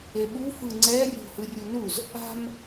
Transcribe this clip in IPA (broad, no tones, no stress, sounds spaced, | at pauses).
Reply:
e ɓ u f ɯ ŋ͡ǀ ɛ rʲ o̤ h ɯ rʲ u n u z | a̤ m